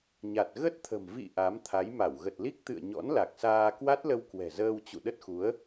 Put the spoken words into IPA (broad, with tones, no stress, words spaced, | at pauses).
ɲa˨˩t̚ ɣə˦˥t̚t̪ʰə̤˨˩m vḭ˧˨ ʔa˨˦mt̪ʰa˨˦j ma˧˩w ɣə˨˩t̚li˦˥k̚t̪ɨ̰˧˨ə̯ ɲɔ̰˧˥nla˨˩k̚saː˧ kwa˦˥t̚lə˧w kwɛ̤˨˩ zəː˧wt͡ɕṵ˧˨ɗə˦˥t̚xu˨˦ə̯